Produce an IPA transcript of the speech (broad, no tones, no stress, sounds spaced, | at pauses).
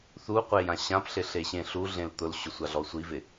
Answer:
θ u qʷ e j ã ɕ ã p ɬ ɪ ɬ e ɕ ẽ ɬ u ɮ ẽ l t̪ ʊ l ɕ ʊ sʷ a ɮ ɔ sʷ i v ɪ